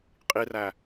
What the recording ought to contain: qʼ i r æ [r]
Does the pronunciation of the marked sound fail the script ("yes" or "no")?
yes